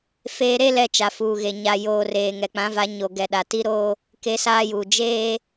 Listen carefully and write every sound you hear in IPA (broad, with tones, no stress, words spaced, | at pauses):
feː˨ɾe˦lɛ˨ t͡ʃa˨fuː˨ɣe˨ ɲa˨joː˨reː˨ ŋɛ˨k͡pã˨˦va˨˦ ɲo˨ɡɛ˨ɗa˨ ti˦ɾoː˦ | ke˦saː˦juː˨ d͡ʒeː˦